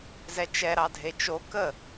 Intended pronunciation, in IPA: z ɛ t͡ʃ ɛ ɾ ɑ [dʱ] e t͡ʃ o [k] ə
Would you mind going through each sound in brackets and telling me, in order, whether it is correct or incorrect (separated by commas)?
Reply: correct, correct